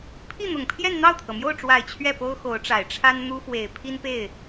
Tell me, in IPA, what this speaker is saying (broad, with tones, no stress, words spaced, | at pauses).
pʰi˥˩n̪ʊ˨˩ŋpʰjɛ˥˧n n̪ɑ˥˩ʊ̯t̪ʰɤ˩mjo˥˩ʊ̯ʈ͡ʂwa˨˩ɪ̯ t͡ɕʰɥɛ˥˩po˥ʊ̯ xo˧˥ʊ̯ʈ͡ʂa˨˩ɪ̯ ʈ͡ʂʰa˥nn̪u˥fwe˨˩ɪ̯ pʰi˥npe˥˩ɪ̯